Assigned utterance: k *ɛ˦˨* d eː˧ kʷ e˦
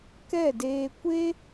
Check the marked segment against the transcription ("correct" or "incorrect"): correct